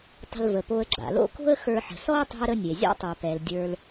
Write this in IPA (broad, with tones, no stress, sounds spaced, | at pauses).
tˤ ə̤˨ l v ə˩ p o˨ ə̯ ɡ͡ǁ a̰˩ l o̰˦ k o̤˦ ə̯ x ə˞˨ ħ ə̤˩ s ɔ˦ ə̯ tˤ o̤˦ ə̯ ɾ ə˦ nʲ e˩ zʲ a̰˥ tˤ ə˞˩ p ɛ˩ l dʲ ə˞˨ l